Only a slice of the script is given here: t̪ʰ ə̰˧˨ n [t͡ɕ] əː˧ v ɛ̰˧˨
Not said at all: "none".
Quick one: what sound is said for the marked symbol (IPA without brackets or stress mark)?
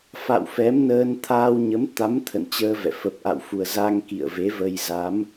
t͡ɕ